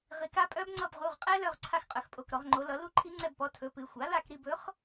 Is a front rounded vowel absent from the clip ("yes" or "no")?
no